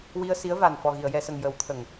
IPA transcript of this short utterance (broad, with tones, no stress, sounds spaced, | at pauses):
w i˧ ə̯ s i˧˥ ə̯ v a˨˩ n f ɔ˨˩ ɣ i˨˩˨ ə̯ j ɛ˨˩˨ s ə˨˩ ŋ j ə˨˩˦ w t̪ʰ ə˨˩˨ ŋ